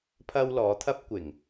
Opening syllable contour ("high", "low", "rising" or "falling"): high